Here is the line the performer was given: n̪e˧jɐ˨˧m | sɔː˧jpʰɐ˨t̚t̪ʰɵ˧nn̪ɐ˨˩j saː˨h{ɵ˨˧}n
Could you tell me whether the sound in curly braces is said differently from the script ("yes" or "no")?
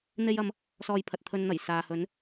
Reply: yes